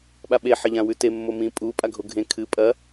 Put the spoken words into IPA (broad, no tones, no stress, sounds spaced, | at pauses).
ɓ a ɓ e ħ ɐ ʎ ã w ʉ t e mː o m ĩ pʼ u pʼ a ɡʱ o ɡʱ ẽ kʰ ɨ pʼ ɐ